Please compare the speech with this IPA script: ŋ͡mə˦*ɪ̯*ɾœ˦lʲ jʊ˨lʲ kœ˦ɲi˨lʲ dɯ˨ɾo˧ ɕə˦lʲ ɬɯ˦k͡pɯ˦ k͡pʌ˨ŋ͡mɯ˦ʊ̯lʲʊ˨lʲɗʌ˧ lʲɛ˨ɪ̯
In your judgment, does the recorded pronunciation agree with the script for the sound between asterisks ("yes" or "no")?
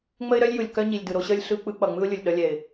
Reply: yes